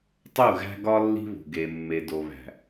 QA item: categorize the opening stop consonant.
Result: plain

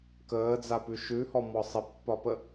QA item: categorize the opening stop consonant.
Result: plain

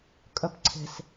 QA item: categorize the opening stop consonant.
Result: ejective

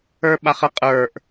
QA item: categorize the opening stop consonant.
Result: implosive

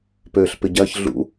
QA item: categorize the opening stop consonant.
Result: plain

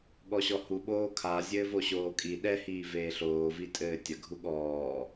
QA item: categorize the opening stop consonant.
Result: implosive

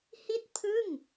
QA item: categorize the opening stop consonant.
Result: plain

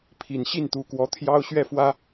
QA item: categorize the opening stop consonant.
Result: aspirated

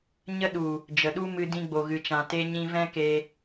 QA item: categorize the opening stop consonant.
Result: implosive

